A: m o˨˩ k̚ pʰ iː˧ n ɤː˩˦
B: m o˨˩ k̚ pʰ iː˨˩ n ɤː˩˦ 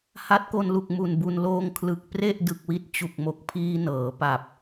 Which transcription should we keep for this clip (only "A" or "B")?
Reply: A